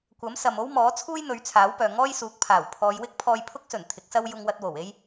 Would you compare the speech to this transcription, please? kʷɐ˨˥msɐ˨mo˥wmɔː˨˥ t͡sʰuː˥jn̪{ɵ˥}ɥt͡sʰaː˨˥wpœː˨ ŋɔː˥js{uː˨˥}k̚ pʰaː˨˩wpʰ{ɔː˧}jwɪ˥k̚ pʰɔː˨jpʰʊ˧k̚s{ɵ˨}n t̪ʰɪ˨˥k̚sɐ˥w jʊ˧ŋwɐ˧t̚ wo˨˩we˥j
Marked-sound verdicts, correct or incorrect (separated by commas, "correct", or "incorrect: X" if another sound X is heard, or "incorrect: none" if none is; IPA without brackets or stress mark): incorrect: ɵ˨˧, correct, incorrect: ɔː˨˧, incorrect: ɵ˨˩